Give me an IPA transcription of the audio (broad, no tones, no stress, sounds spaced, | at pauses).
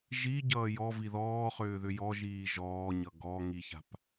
ʒ i ɟ ʌː j ɔ v i ð ɔː χ ʏː ð ʏ j ɔ ʒ iː ʒ ɔː ɲ ʌ ɡ ɔ ŋ i ç a̤ p